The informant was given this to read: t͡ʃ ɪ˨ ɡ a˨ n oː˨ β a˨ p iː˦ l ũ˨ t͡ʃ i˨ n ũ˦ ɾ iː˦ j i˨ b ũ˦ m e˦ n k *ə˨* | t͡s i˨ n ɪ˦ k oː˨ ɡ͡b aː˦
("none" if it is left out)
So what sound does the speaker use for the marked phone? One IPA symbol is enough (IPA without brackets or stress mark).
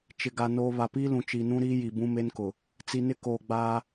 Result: ʊ˨